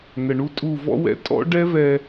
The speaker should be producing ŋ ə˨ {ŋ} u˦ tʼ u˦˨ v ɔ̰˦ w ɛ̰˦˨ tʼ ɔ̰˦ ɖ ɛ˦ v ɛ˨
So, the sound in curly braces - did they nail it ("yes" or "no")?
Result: no